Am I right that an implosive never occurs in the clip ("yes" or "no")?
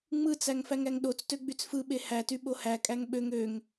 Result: no